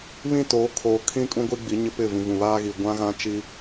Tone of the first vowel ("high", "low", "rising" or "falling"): falling